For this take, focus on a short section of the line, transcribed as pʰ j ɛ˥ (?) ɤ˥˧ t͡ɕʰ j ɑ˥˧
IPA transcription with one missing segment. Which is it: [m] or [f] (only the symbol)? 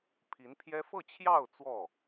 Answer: f